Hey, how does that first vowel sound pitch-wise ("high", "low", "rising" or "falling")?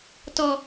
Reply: high